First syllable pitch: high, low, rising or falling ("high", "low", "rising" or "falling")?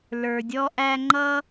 low